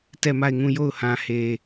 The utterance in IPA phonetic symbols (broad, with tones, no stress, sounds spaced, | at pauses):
t ɛ˦˨ m a˦˨ ɪ̯ ŋ ũ˦˨ j o˦˨ ʊ̯ h ã˨ h e˨